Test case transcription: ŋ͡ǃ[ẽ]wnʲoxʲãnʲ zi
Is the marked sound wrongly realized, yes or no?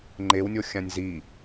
yes